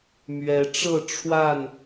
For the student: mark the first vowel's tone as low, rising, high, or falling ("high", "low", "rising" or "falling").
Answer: rising